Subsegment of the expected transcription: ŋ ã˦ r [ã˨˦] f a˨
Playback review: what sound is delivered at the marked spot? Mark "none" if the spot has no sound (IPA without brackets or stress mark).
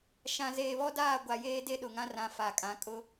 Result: ã˨˦